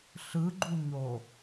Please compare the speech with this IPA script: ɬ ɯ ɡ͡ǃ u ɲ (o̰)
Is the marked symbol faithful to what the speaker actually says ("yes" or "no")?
no